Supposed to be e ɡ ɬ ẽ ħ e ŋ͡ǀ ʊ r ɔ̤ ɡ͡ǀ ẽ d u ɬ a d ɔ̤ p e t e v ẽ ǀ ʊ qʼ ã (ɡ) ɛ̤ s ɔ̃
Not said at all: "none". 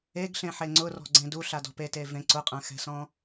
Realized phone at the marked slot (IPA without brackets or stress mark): x